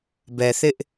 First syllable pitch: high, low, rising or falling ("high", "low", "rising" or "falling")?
low